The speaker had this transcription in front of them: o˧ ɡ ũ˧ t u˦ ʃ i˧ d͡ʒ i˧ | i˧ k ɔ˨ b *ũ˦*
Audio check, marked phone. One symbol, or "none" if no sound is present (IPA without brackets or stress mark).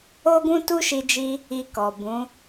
ũ˨˦